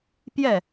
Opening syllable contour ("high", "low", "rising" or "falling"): falling